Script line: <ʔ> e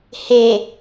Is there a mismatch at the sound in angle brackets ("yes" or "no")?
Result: yes